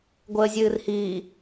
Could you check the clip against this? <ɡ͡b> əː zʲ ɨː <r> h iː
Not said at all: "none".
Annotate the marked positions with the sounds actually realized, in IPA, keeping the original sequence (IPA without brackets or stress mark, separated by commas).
ɡʷ, r